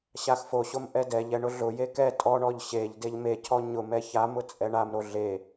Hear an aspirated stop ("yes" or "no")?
yes